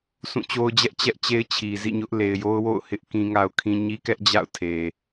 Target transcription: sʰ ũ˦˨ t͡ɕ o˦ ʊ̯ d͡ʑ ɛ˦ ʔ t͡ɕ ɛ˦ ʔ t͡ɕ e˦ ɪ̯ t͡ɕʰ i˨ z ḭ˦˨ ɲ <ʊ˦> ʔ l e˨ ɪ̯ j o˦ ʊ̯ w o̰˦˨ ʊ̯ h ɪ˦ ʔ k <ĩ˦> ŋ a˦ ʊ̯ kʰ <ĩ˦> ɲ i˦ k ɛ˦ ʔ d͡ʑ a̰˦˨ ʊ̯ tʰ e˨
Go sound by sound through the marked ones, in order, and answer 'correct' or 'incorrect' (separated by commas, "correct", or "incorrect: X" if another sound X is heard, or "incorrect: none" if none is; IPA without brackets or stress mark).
correct, correct, correct